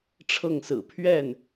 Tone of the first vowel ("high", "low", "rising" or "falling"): falling